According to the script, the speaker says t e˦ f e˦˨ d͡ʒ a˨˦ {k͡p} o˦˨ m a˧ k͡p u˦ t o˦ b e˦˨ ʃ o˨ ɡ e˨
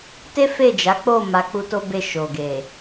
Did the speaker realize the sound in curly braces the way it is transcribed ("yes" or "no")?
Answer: yes